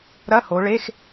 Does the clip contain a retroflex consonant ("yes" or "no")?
yes